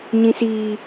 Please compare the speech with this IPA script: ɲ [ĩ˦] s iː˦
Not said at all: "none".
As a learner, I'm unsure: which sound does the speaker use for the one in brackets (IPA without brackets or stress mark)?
ĩ˦